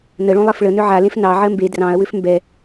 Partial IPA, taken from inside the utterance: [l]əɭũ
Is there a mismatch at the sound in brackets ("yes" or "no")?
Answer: yes